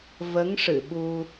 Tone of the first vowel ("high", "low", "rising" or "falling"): rising